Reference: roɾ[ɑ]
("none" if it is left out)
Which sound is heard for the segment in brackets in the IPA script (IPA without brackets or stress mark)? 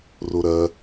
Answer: ɐ